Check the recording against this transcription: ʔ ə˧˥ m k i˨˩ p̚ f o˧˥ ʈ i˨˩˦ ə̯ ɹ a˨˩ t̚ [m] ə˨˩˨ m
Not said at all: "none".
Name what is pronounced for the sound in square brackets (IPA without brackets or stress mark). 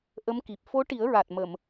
m